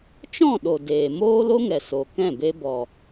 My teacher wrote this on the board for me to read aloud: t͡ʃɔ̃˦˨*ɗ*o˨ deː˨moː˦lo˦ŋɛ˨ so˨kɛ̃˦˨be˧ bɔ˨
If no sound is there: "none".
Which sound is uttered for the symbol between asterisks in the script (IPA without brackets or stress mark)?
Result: ɗ